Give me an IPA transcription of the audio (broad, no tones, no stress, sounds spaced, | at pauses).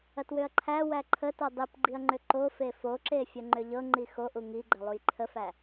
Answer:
ɐ t w ʏ ɐ̯ ǃʰ æ w æ ǃʰ ə t o dˤ i p ɡ͡ǃ i ɐ̯ ŋ͡ǃ ʏ ǃ o f e f o ǁ e fʲ ə ŋ͡ǃ ʏ ʎ ɤ ŋ͡ǃ i x o ʔ u ŋ i ɡ͡ǃ ɐ lˠ u j ǃʰ ə f æ